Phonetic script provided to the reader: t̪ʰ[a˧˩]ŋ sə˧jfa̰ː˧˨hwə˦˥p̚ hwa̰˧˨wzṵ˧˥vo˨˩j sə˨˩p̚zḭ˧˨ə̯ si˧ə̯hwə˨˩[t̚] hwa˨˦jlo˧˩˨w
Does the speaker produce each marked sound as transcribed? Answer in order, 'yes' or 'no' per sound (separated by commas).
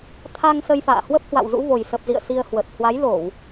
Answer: no, yes